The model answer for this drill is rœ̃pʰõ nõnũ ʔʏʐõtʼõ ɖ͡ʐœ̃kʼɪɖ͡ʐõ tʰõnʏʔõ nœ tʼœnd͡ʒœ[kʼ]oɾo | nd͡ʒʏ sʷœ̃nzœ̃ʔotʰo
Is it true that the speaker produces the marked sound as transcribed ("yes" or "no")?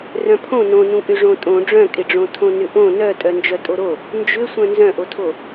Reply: no